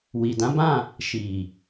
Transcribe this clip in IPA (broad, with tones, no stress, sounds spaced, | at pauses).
w i˨ d ã˨˦ b ã˦˨ | ʃ i˨